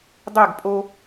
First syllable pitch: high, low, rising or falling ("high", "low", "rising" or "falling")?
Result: falling